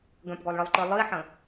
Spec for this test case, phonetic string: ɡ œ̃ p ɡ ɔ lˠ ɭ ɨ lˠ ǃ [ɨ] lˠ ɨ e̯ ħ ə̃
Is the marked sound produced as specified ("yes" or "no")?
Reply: yes